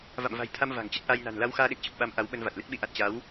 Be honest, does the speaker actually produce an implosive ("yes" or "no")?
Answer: yes